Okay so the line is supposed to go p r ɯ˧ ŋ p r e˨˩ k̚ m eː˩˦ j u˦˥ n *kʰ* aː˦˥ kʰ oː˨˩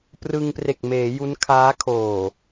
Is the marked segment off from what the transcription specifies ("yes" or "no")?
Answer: no